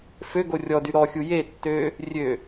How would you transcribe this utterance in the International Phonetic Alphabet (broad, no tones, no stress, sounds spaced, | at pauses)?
f ø ɡ o rʲ ɔ d y ɾ ɔ xʲ u j e tː ø | rʲ ø